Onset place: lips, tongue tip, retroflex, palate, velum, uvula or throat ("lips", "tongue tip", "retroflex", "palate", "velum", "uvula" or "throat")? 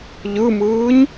palate